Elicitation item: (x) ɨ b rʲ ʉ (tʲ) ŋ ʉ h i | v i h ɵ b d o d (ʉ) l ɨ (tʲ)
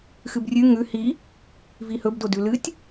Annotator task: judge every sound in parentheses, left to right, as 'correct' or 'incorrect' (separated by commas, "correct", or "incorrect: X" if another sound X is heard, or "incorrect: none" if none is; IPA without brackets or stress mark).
correct, incorrect: none, correct, correct